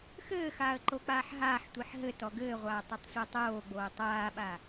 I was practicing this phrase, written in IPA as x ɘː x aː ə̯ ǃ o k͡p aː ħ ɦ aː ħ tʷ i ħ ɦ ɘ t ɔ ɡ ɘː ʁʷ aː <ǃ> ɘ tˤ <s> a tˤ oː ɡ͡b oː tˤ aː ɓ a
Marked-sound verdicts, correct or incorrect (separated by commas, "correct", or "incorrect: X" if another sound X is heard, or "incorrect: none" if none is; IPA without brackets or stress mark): incorrect: tˤ, incorrect: sʷ